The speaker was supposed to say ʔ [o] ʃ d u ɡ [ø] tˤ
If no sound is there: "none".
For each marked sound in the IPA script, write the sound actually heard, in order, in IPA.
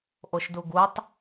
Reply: o, u

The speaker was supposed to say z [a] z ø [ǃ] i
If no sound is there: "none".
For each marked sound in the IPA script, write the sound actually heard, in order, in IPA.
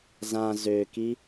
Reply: ã, k

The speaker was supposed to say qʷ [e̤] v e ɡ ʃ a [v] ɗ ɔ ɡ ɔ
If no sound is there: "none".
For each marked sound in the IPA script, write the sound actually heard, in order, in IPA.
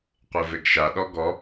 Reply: e, none

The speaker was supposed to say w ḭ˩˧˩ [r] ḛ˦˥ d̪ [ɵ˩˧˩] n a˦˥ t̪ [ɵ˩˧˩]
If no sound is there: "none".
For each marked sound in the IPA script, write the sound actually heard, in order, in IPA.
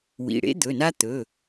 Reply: ɽ, ɵ˩˧˩, ɵ˩˧˩

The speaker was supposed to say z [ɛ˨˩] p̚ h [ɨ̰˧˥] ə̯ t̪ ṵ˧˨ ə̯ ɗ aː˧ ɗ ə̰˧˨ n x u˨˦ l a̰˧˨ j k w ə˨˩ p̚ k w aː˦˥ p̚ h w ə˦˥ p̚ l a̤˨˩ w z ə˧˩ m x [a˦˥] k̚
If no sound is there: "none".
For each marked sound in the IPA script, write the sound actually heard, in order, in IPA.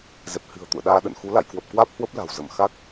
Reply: ɛ˨˩, ɨ̤˨˩, a˦˥

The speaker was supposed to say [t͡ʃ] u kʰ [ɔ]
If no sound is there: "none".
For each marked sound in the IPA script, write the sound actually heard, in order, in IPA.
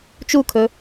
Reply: t͡ʃ, ɵ

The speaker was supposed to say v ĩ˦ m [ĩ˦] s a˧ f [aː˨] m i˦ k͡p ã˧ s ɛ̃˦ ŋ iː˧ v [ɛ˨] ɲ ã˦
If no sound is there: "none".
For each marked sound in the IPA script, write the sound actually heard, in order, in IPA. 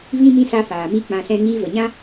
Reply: ĩ˦, aː˨, ə˨

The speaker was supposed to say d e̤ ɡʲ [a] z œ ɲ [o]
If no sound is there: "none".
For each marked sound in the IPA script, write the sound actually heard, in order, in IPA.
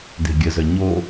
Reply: ə, o

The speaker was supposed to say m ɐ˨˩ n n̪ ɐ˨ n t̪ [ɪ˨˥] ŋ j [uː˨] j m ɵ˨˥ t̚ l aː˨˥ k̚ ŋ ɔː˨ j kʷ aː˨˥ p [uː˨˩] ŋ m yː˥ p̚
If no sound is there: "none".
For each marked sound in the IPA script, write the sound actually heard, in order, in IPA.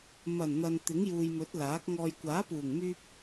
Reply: ɪ˨˥, uː˨, uː˨˩

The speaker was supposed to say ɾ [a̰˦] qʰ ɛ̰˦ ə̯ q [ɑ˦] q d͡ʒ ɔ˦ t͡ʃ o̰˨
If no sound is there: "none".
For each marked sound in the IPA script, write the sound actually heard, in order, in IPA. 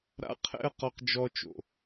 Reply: a̰˦, ɔ˦

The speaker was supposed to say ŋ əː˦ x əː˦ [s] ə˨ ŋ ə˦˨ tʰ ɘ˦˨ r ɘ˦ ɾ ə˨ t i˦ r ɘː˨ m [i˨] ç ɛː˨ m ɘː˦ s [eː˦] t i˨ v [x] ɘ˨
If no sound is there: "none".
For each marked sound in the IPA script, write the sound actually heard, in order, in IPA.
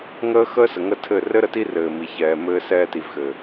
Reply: s, i˨, ɛː˦, x

